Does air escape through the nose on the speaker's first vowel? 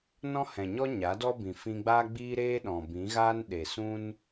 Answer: yes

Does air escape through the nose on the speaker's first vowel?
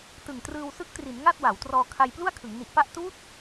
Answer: no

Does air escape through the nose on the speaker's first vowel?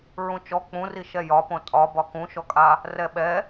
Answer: yes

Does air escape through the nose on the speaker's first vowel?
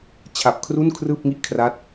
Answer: no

